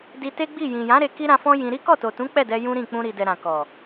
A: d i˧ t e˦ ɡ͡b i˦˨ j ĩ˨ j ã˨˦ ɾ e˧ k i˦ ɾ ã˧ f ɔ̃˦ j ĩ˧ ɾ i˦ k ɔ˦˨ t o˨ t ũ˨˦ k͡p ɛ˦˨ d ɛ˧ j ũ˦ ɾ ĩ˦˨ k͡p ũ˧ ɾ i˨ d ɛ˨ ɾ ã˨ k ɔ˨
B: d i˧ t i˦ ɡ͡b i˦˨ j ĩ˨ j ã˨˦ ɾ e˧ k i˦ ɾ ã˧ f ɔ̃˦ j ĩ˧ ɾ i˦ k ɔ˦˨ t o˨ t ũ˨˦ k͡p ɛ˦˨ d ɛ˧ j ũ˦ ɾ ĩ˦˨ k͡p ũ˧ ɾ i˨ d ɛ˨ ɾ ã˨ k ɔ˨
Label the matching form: A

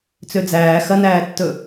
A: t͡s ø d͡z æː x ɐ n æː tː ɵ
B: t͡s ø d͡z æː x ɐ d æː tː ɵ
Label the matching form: A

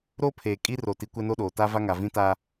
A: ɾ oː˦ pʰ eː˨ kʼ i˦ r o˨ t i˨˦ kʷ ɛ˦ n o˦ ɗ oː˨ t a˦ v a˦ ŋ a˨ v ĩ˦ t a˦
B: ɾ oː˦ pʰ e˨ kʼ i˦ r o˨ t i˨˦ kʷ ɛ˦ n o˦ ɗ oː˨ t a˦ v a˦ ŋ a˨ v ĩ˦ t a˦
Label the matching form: A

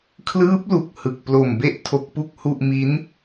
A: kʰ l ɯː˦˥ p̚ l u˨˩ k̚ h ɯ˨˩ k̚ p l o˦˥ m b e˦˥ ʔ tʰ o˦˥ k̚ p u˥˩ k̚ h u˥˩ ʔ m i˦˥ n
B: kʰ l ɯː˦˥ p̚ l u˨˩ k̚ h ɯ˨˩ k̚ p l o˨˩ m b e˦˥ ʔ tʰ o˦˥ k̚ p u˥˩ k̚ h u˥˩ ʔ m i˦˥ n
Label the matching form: B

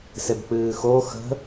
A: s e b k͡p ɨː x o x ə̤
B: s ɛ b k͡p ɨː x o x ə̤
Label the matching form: A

